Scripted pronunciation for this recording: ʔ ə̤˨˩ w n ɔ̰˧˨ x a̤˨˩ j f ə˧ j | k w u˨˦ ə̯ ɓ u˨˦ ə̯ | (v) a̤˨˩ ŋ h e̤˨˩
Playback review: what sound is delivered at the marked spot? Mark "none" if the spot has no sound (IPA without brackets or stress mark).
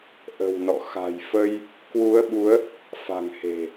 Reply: f